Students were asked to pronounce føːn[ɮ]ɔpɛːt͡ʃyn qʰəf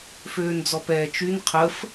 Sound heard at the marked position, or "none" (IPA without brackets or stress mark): d͡z